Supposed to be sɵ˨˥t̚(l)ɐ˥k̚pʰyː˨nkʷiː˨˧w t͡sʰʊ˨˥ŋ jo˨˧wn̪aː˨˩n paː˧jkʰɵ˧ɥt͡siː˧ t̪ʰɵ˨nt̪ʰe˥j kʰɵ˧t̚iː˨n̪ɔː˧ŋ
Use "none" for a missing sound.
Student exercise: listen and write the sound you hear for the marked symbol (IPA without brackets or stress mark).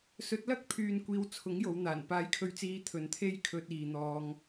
l